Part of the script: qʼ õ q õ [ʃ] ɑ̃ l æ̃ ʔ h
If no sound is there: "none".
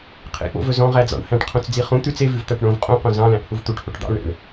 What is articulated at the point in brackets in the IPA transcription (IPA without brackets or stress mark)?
z